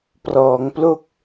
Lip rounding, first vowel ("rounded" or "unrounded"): rounded